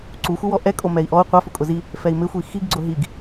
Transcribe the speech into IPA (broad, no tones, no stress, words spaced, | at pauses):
ǀuxʷɪwɔ ʔɛkʼo mɛi̯ʔɔu̯ qʷafʊkʼʊ zi | fɛi̯mɪxʷi xiɡɡ͡ǀʊ ɦiɡ